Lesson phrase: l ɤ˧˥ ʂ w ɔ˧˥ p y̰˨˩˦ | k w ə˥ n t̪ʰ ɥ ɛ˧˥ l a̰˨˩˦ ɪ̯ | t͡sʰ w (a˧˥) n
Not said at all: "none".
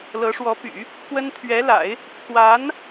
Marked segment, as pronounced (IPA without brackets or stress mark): a˧˥